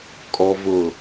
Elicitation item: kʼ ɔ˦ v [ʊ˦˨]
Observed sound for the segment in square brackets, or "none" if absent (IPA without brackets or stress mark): ʊ˦˨